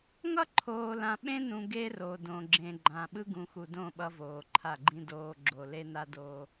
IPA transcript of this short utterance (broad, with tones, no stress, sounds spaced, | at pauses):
ŋ ʌ˦ ǃʰ oː˨ l ã˨ ɓ ẽ˦ n ũ˨ ɡ e˦ r o˨ d õ˨ ɡ͡ǁ ẽ˨ ɡ͡ǃ ã˨ ɓ ɯ˦ ɡ ũ˨ x u˨ d õ˦˨ ɓ ʌ˦ v oː˨ ǃʰ a˦˨ ɡ͡ǃ ĩ˦ d oː˨ ɡ͡ǁ o˨ l e˦ n a˦ d oː˦